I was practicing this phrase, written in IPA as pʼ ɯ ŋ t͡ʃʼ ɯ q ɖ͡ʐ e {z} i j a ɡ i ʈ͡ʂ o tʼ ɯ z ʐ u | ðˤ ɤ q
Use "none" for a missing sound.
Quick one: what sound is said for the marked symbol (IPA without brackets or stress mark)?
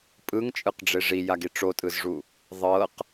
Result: ʐ